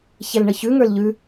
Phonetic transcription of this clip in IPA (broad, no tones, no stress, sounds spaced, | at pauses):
ç ɛ l ɳ ə ç ʉ ŋ ə˞ l ʎ ʉ